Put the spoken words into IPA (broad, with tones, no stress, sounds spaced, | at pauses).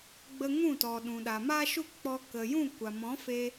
ɡ͡b ə˧ ŋ ũ˦˨ t ɔ˨ ɗ ũ˨ ɗ a˨ m a˦ ʃ u˦ k͡p ɔ˧ k ə˨ j ũ˦˨ kʷ a˨ m ɔ̃˨˦ f e˧